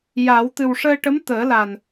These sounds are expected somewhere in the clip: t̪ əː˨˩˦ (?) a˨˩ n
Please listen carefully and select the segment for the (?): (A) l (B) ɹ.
A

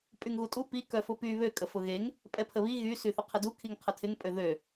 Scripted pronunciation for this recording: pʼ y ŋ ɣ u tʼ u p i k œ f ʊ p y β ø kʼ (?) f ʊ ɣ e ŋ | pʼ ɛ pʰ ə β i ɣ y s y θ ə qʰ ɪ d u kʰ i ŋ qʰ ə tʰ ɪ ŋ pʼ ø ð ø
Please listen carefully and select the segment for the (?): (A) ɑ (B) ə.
B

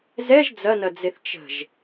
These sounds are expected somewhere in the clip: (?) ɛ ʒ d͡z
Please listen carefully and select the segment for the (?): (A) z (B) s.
A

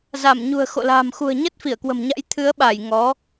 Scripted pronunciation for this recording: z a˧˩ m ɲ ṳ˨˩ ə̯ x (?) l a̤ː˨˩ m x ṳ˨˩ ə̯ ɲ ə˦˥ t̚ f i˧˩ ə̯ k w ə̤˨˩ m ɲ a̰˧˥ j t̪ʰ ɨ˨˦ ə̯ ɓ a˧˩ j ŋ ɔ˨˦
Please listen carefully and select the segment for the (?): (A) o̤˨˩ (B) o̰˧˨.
B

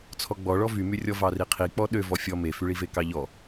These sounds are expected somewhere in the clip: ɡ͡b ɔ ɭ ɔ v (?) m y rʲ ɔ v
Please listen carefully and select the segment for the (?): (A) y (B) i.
A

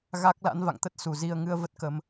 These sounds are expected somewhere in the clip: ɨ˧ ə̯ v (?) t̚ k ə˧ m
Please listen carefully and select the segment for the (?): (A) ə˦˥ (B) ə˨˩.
A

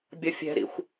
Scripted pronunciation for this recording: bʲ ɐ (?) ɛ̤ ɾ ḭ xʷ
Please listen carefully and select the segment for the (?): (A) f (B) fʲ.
B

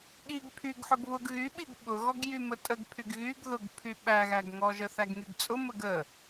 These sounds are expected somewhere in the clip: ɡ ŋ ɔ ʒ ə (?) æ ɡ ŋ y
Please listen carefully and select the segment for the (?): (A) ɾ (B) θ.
B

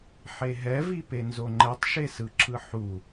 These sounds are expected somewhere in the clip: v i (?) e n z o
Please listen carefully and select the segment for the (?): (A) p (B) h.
A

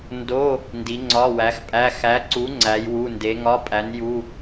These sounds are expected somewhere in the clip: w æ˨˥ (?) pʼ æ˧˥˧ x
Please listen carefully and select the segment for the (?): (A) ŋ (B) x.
B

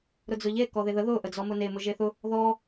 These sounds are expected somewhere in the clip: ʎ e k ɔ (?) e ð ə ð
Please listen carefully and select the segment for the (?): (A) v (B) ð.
B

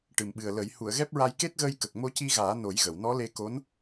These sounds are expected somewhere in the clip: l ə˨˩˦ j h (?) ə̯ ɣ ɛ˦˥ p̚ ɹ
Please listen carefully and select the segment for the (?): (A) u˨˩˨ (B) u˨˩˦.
A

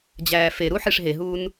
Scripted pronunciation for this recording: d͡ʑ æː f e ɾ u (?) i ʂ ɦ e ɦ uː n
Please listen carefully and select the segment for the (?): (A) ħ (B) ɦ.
A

